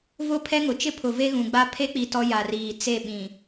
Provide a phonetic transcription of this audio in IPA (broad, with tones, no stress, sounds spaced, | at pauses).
v ʊ˦ pʰ ɛ˦ ŋ ʊ˨ t͡ʃ ɪ˦ pʰ ʊ˨ v e˦ ɣ ũ˨ ɡ͡b a˦ pʰ e˦ k͡p i˨ t ɔ˦ j a˨ r iː˨ t͡s e˦˨ ɓ ĩ˨